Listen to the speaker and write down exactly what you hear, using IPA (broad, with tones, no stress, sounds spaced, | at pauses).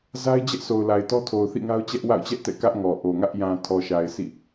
z a˦ ɪ̯ d͡ʑ ɛ˦ ʔ s o˨ ʊ̯ l a˨ ɪ̯ t ɔ˦ tʰ o˨ ʊ̯ θ ḭ˦˨ ŋ a˦ ʊ̯ t͡ɕ ɛ˦ ʔ w a̰˦˨ ʊ̯ t͡ɕ ɛ˦ ʔ t ɛ̰˦˨ k ä˦ ʔ ŋ ɔ˨ ʔ o˨ ŋ ä˦ ʔ j ã˨ tʰ ɔ˨ ʃ a˨ ɪ̯ s ḭ˦˨